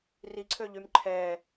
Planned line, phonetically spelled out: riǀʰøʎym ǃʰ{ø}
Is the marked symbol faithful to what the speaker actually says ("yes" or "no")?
no